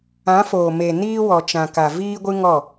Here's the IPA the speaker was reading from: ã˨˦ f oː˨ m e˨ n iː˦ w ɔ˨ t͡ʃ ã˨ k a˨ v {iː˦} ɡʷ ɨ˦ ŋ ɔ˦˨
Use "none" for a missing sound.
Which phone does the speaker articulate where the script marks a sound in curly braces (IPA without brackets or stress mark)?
iː˦